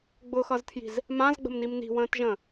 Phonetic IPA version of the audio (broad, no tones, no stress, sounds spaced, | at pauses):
ɡ͡b ʊ x ʌ z tʰ j i̤ z | m ã z ɡ͡b ə̤ m n i m n i̤ w ə̃ː t ʒ ə̃ː